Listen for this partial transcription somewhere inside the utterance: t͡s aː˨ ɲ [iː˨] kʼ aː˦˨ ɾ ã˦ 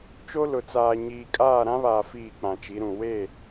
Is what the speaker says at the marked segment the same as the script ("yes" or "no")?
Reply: yes